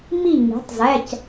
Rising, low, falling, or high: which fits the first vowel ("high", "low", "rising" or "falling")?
falling